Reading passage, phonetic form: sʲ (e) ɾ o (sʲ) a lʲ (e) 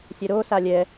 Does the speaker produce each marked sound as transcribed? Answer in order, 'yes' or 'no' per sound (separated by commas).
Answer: no, no, no